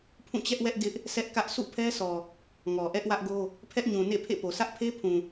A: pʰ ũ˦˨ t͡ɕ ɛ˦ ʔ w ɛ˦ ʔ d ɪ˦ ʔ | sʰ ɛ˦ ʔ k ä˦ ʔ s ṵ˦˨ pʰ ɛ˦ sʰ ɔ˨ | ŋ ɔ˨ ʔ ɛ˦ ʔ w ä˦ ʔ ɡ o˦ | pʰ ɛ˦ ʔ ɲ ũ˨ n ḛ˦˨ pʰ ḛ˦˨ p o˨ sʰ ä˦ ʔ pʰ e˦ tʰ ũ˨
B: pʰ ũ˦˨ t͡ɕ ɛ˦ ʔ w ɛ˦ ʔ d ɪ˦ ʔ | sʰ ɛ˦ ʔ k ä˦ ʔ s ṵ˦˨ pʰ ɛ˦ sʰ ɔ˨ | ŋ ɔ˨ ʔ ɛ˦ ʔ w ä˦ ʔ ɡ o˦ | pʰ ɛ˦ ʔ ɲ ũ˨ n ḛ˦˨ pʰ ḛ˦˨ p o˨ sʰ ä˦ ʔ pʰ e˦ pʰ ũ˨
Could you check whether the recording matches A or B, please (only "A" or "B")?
B